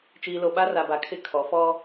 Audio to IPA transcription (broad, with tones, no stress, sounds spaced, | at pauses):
t͡ʃ iː˨ l o˨ ɓ a˦ r a˨ b a˨ kʰ ɪ˦˨ kʰ ɔ˨˦ f ɔ˦